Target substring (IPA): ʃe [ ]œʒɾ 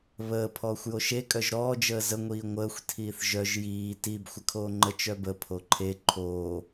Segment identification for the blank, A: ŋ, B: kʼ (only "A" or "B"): B